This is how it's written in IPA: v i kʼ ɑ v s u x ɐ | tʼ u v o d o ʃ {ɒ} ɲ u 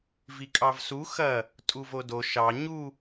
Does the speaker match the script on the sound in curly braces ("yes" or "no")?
no